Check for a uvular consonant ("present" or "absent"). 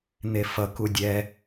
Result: absent